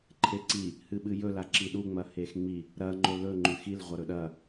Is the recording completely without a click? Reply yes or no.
no